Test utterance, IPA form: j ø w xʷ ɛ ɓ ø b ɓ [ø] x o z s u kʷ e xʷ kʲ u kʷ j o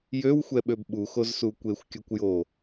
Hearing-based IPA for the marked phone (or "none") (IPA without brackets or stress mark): u